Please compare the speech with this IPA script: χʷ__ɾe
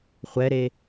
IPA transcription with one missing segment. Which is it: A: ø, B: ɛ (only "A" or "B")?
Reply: B